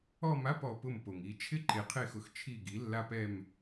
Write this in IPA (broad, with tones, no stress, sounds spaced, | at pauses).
ɔ˥˧ m a˧˥˧ p ɔ˩˧ p ʊ˧˩ m p o˩ ŋ i˩˧ t͡ʃʰ ɪ˥˧ ǃ e˩˧ qʰ e˧˩ x ʊ˩˧ x t͡ʃʰ i˧˩ ɡ i˩˧ lː a˧ p ɛ˧˩ m